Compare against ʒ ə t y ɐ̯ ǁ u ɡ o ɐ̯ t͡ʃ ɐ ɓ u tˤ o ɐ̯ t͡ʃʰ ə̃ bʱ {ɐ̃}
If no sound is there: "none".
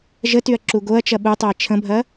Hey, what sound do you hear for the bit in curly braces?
ɐ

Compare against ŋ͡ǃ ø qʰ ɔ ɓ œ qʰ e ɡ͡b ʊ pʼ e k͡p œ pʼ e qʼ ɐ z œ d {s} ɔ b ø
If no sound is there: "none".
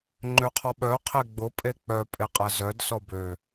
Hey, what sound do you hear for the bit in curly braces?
s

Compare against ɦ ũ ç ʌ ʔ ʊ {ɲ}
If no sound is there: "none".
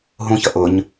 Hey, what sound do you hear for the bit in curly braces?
ɲ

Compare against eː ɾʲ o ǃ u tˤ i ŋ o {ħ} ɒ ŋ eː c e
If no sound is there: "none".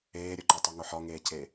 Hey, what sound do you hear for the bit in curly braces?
ħ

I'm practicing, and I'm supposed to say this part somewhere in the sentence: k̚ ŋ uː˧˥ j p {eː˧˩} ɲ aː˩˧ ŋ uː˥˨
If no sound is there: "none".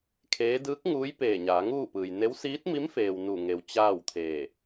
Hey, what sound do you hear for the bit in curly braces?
eː˧˩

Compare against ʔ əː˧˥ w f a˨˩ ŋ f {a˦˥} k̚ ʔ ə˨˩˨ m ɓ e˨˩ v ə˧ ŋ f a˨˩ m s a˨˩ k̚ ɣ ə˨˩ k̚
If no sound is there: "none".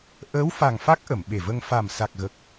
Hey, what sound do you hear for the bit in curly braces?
a˦˥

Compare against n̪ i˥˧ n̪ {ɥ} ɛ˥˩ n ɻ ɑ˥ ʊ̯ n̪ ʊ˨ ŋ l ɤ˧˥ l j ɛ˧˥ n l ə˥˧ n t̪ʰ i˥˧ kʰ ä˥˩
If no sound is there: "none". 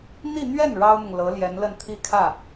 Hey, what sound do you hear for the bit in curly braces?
ɥ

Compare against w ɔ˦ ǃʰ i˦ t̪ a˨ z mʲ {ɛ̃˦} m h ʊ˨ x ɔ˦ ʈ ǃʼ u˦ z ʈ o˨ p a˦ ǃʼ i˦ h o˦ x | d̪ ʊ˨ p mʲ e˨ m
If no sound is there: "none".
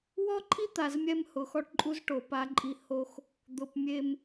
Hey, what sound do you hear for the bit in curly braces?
ɛ˦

